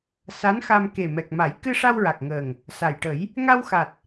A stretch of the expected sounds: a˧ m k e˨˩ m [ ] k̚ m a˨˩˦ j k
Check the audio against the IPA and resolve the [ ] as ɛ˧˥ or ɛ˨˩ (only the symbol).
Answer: ɛ˨˩